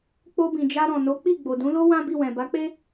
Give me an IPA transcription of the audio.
k͡po˧bĩ˨d͡ʒa˧ ɾɔ̃˨no˨˦k͡pi˦˨ ɡ͡bo˨dũ˨˦lo˦ wã˦bi˦˨wɛ̃˨ ba˨˦k͡pe˦

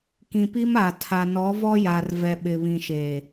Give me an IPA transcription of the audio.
kĩ˨pi˦ma˨ tʰa˨ nɔ˨˦vɔ˦ja˨r vɛ˨ɓɪ˨βĩ˨ʃeː˨

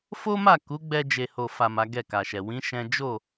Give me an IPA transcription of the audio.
fo˦ma˦˨ku˨˦ɡ͡bɛ˧ d͡ʒe˨ho˨fa˨ ma˨˦ɡɛ˦˨ka˨ʃɛ˨ wĩ˨˦ ʃɛ̃˦ d͡ʒo˦˨

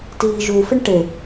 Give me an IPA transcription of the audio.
tiːʒufɪɳ ʈe

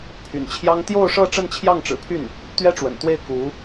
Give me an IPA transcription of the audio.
pʰy̰˨˩nt͡ɕʰjɑ˥ŋ t̪jo˥˧ʊ̯ʂɤ˥˧ ʈ͡ʂə˥˧nt͡ɕʰjɑ˥˩ŋʈ͡ʂɻ̩˨˩pʰy˥˩n | t̪ɥɛ˥ʈ͡ʂwə̰˨˩nt̪we˥˩ɪ̯ ku˧˥

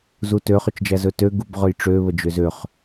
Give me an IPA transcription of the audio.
zutø χøt͡ʃd͡ʒæzɵtø ɡubʁɵjʈ͡ʂø βəd͡ʒøzøχ

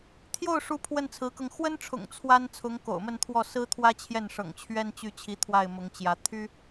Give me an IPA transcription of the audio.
t̪ʰjo˥˩ʊ̯ʂu˧˥ pʰwə˥˩nt͡sʰɹ̩˧˥kɤ˧ŋ xwə˥nʈ͡ʂʰʊ̰˨˩ŋ t͡sʰwa˥n t͡sʰʊ˧˥ŋko̰˨˩ʊ̯mə˥˧nt̪ʰwɔ˥˩ sɹ̩˥t̪ʰwä˥t͡ɕʰjɛ˥˩nʂɤ̰˨˩ŋ t͡ɕʰɥɛ˥nt͡ɕy˥˩t͡ɕʰi˧˥t̪ʰwa˥˩ɪ̯ mʊ˧˥ŋt͡ɕjä˧˥ t̪ʰy˥

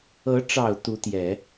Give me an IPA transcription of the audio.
ɤ˧˥ʈ͡ʂɑ˨˩ʊ̯ t̪u˧˥t̪jɛ˨˩˦

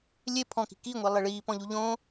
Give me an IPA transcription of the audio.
lʲe pʰɔ̃ki̤ kiŋʷe lˠeɭiːpɔ̃ʎu ʎõ

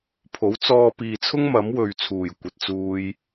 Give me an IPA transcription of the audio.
pʰo˨˥w t͡sɔː˧piː˨t͡sʰʊ˥ŋ mɐ˨˥mwɵ˨ɥt͡sʰuː˨˩j kʷɐ˨t̚t͡suː˧j

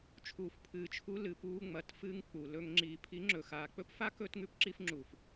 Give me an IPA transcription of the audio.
t͡ʃʰuː˨fpʰɨː˨t͡ʃʰu˧ lɨ˨puː˧ ŋ͡mɐ˨tfɨː˧ŋ k͡pu˨lɵ˧ŋ ŋ͡ǁiː˨ pʰi˨˦ŋ͡ǁɵ˨ xaː˨k͡pɵ˦pfa˦ kɵ˧tŋʉ˧p ǁi˧fŋ͡ǁuː˨f

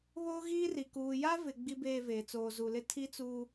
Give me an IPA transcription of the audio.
βoː˦ɣiː˦ri˨ kuː˨ja˦vɪ˨ ɡ͡bi˦beː˦˨ veː˨t͡soː˨zu˨lɪ˦ tʰi˦t͡suː˦

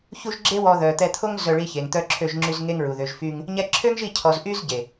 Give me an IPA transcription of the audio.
çu˦ʒ ɡ͡ǁe˦wɔ˧ ðœ˨t̪ɛ˧t̪ʰo˦ŋ zœ˧ɭi˧çe˨ŋ t̪œ˧ǁʰø˧ʒŋ͡ǁy˧z ŋe˦ŋɹu˨ðø˧ʒfy˦ŋ | ɲɛ˧ǁʰø˦ŋʒi˦˨cʰɔ˨z ʔy˦zɟe˨

